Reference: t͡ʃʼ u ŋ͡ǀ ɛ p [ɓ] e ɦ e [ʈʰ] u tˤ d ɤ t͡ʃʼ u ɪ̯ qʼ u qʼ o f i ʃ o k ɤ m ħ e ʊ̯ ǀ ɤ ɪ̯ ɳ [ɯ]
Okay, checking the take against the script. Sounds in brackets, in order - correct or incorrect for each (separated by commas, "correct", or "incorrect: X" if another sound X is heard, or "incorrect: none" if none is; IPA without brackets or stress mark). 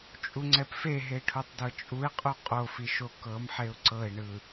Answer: incorrect: f, correct, correct